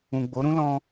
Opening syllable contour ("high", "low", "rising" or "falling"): low